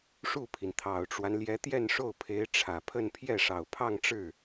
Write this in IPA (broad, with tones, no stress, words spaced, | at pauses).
ʂu˥˩pʰi˩nt̪ʰɑ˨˩ʊ̯ʈ͡ʂwa˦n ljɛ˧˥t̪jɛ˥˧nʂo˥˩ʊ̯ pʰe˧˥ɪ̯ ʈ͡ʂʰä˨˩pʰə˥˧n pʰjɛ˥˩ʂɑ˨˩ʊ̯pʰɑ˥˧ŋʈ͡ʂɻ̩˥˩